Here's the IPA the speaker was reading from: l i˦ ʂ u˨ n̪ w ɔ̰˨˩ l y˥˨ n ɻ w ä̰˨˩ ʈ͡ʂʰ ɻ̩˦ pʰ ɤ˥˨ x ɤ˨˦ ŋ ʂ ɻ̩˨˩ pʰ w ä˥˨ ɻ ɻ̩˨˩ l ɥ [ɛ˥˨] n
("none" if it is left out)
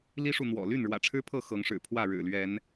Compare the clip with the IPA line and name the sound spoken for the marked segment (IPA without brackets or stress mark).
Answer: ɛ˨˦